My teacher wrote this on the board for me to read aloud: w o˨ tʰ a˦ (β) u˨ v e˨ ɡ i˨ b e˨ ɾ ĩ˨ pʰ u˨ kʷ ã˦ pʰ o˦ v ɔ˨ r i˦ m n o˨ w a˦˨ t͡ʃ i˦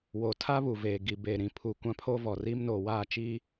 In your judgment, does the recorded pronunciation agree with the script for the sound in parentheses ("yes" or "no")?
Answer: yes